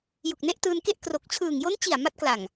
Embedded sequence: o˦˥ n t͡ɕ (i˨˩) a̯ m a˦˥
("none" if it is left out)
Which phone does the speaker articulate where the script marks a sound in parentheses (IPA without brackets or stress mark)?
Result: i˨˩